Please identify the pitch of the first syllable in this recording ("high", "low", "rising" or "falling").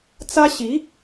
high